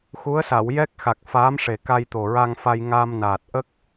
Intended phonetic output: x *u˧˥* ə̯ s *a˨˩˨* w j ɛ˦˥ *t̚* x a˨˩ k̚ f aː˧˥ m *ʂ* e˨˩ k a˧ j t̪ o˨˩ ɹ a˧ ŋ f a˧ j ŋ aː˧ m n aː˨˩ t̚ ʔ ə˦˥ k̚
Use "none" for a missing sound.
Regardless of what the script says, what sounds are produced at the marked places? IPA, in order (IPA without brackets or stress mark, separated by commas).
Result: u˧˥, a˨˩˨, k̚, ʂ